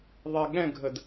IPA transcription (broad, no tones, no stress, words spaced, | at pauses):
ðˤɛɠɛ̃ɡʱəd